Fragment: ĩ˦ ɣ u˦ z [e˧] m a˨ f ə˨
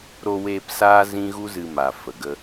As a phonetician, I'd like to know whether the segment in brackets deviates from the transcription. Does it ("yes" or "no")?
yes